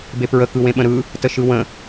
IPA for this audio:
b e p ɹ ə k ɯ w ẽ ɓ ə̃ ɾ ɯ | t ə ʃ ɯ w ə̃

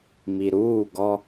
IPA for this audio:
m i˨ ɾ uː˦˨ ɡ ɔ˦

